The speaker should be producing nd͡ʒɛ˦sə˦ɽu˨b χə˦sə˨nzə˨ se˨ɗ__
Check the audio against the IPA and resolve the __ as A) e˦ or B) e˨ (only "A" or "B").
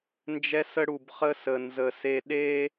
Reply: A